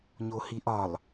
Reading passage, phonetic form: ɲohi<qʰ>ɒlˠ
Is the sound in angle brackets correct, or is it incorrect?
incorrect